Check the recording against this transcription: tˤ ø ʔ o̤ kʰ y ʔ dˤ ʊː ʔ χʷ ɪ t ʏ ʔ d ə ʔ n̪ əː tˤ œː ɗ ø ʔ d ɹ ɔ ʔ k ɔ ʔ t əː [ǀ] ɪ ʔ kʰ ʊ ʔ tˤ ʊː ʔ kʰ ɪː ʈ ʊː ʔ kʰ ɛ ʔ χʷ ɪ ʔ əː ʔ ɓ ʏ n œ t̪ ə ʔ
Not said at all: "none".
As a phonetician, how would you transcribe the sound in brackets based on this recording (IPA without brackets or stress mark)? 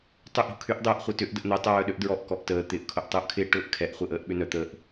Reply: t̪